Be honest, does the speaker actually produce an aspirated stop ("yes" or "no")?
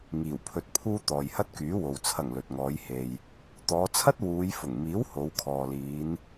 yes